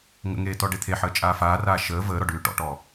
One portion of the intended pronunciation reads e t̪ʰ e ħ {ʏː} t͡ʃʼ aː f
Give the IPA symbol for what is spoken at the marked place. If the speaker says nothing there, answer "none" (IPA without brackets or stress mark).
əː